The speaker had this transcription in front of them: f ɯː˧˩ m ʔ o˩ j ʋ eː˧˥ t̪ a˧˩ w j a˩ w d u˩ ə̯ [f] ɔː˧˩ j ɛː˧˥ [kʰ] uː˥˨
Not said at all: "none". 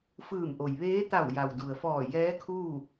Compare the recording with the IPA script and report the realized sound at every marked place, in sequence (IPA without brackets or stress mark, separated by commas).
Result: f, kʰ